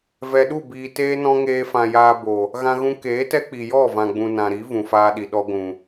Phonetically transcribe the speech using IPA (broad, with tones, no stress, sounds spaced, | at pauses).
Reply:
v ɛ˨ ɗ u˦˨ b iː˨ t eː˧ n ɔ̃˧ ŋ eː˧ f ã˨ j aː˧ b o˨ | ɣ ã˧ ɣ ũ˧ k eː˨˦ t ɛ˦ k͡p i˨ j ɔ˦˨ v ã˨ ɡ͡b ũ˨ n ã˨ ɾ i˨˦ v ũ˨ f aː˧ ɗ i˨ ɗ ɔ˧ ɡʷ ũ˨